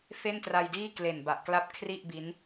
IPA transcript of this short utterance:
fe˥˩ntra˧jdiː˥˩ kle˨˩nba˨˩ʔkla˦˥p̚ kʰri˥˩ʔ bi˦˥n

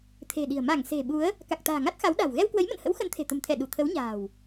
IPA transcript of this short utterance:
t̪ʰe̤˨˩ɗi̤˨˩ə̯ ma˧˩ŋ se̤˨˩ɓu˨˦ə̯ | ka˨˩k̚t̪a̤ː˨˩ ŋa˦˥t̚xa˨˦wɗa̤˨˩w ɣɛ˧wkwə˨˦jmə̰˧˨nhə̰˧˥w xə˨˦nt̪ʰe̤˨˩t̪ə̤˨˩mt̪ʰɛ˧˩ ɗu˧˩t̪ʰə˨˦wɲa̤ː˨˩w

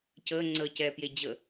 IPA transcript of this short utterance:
cəː ŋ͡ǀəːcɛːpjed͡ʑə

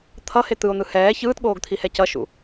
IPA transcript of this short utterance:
t̪ʰʌhe t̪ɯo̯n̪ɯ hɛː çɯːtɠoːɡt̪ʰihɛ cʌʃṵ

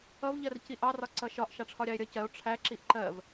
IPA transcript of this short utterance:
ʌvʎɜr ciʔɑrɒ ǀʌʃɒʔ ʃɑʈ͡ʂʰɒɾʲɑe̯ɾʲʌ cɜo̯ ʈ͡ʂʰæ ǁiʔǃɜv

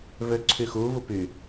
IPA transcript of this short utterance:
vøǀʰyxu vupy

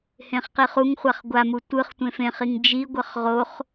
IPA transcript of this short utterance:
hẽχqiχuŋχʷaχ ɡʷamu tʷɯχ tʷẽfẽχiŋ d͡ʒiɡʷʌχ ʁoχ

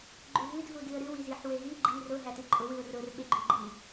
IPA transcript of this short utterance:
ɡ͡ǃʉɦɨd ɦudɨə̯ɾɨw iziħ weɦi ɡ͡ǃi rʊ ɦætɨǃʼʊ wɨʊ̯rʊr ɓeɡ͡ǃʉɡ͡ǃi

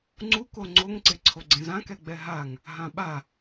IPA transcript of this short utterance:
ŋ͡ǀuko ŋ͡ǀoŋǀe ǀʰoɡ͡ǀẽzãkɛ ɡ͡bɛɦaŋ | ɦãɓa

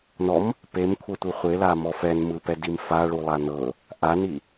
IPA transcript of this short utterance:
nɔm | pemkʷʰɤtʷɯ χʷelamɔ fɛnmɯpɛdim faɭulˠa nɤ | ʔani

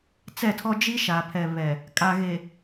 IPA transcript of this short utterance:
t͡sɛ˦˨tʰɔ˦ d͡ʒi˦ʃa˨pʰɛ˨βɛ˨ | kʼa˨ɣe˨

